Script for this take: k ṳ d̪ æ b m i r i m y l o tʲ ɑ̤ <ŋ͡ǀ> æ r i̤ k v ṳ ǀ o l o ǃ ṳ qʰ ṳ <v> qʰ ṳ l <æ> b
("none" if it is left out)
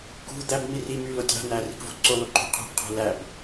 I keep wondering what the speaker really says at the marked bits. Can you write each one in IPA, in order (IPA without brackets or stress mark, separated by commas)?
n̪, b, æ